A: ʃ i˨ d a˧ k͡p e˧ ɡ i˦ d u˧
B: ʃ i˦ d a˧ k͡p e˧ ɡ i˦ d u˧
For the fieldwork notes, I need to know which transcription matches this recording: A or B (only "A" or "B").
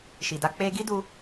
A